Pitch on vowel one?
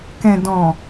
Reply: low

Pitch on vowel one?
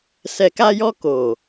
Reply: low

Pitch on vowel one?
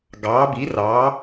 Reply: rising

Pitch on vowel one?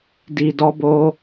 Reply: low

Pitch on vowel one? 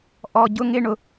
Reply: high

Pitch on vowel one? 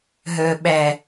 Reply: low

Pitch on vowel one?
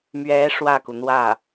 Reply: rising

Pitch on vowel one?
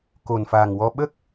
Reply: low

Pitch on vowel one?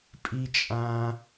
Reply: low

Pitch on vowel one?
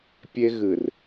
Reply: high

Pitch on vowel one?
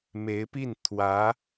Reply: rising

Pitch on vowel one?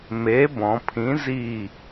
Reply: rising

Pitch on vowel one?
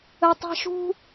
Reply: high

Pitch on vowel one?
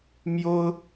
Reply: high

